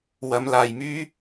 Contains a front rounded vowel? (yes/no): yes